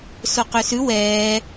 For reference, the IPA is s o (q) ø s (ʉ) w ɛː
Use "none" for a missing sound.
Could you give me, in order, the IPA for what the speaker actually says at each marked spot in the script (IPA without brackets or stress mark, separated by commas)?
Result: q, ʉ